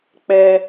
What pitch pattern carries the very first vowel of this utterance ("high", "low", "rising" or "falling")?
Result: high